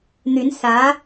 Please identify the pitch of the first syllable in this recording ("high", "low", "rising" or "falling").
rising